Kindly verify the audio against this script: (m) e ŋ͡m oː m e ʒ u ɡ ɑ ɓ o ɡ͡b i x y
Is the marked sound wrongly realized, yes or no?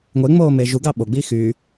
yes